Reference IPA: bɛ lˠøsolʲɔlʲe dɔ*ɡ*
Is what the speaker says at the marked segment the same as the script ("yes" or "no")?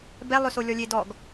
yes